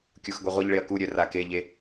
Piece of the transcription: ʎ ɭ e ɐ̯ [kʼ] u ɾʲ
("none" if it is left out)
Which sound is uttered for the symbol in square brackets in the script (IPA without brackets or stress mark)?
k